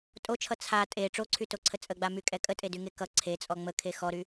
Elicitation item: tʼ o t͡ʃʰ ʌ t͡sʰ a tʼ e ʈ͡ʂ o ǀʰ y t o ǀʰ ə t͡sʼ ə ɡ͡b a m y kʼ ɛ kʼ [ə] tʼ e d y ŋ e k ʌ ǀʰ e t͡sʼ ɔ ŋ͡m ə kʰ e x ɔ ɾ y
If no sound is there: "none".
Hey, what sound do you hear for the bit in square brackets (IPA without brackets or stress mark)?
ə